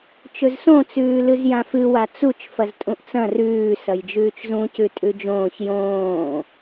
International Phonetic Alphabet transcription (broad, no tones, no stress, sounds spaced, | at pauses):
t͡ʃ ɵ z s õ t͡s ʉː l ɨ z j ã f ɨ w a t͡s u t͡ʃ f ɐ z tʼ ũ ʔ t͡s ɐ̃ r ʉː s ɐ j d͡ʒ ʉː t͡ʃ z ũ c ʉ tʼ ʉ d͡ʒ õː ç j õː